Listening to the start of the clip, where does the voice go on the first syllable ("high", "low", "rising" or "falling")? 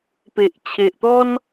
low